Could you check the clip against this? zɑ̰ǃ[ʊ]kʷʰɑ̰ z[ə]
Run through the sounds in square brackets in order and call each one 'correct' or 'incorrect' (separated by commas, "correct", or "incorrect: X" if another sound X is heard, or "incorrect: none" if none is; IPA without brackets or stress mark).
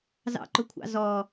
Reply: correct, incorrect: ɔ